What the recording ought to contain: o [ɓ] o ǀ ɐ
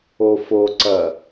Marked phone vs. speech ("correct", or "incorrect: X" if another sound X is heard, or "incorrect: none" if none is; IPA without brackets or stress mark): incorrect: f